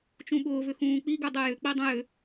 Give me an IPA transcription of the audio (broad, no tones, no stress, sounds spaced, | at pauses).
t͡ʃ ũ ɓ ʊː v ʏ x ũː k͡p i ɡ ʉ dˤ e j ʏ k͡p i dˤ ũ j ʏ